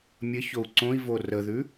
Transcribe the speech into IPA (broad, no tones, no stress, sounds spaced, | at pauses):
mʲ ə ç o u̯ ǀ õ i̯ v o r ə ð ʉ